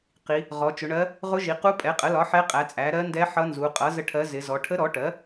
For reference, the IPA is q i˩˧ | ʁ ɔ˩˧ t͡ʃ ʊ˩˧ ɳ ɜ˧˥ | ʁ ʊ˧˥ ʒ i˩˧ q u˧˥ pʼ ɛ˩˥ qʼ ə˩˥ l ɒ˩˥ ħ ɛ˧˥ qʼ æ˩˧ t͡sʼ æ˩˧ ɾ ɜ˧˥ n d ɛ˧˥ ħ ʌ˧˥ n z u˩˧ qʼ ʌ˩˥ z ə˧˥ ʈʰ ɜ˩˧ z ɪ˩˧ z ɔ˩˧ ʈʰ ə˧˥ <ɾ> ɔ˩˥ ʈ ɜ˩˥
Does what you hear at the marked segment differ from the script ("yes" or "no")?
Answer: no